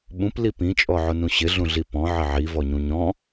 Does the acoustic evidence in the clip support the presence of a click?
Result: no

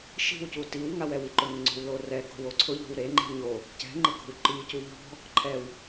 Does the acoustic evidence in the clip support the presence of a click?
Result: yes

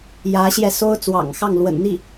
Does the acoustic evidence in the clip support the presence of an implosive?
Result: no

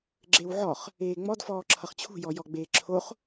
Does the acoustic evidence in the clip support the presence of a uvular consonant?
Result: yes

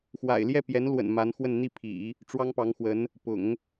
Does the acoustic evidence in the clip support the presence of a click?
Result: no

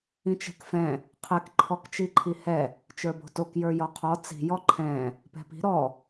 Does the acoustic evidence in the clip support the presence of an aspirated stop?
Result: yes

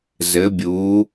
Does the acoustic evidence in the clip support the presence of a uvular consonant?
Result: no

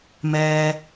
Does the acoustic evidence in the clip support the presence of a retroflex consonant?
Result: no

